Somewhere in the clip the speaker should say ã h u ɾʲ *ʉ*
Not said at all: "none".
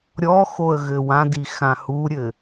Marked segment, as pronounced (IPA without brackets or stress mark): ɘ